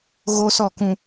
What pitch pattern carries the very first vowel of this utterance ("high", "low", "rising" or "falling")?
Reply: high